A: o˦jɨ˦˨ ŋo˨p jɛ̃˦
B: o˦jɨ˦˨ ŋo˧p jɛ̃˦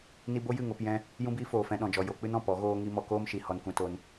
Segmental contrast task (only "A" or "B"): B